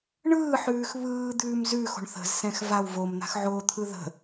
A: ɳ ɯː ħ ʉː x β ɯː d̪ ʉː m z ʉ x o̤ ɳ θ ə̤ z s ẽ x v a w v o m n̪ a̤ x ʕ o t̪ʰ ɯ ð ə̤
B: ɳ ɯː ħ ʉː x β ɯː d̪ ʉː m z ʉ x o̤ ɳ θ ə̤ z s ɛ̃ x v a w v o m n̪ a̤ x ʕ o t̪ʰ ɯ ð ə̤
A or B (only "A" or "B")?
B